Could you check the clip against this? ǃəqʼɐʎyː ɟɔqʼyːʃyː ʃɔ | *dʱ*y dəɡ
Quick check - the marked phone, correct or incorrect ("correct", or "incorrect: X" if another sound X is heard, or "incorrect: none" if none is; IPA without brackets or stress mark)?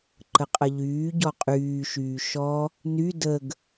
incorrect: n